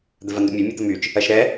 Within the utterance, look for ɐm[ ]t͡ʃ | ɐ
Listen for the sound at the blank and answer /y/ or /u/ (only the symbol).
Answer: y